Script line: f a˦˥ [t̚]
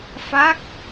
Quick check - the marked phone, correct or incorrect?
incorrect